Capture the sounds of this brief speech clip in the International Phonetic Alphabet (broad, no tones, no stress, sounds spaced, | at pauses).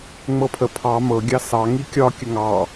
ŋ͡m ɤ pʰ ə pʰ ɑ m ɤ ɡʲ ɑ s ɑ ŋ i kʲ ɒ kʲ ə ŋ ɑ